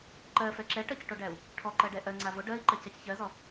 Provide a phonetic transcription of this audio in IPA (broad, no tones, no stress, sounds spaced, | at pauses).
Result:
ǃ ɜ f ɛ ǁ ɛ ʈ ɜ c ʈ o ɖ æ u̯ | ʈʰ ɔ ǃ ɜ ɖ ɛ ʔ ɜ ŋ͡ǀ a v o ɖ ɜ i̯ ǃ ɜ c ɛ c ç ɜ z ɔ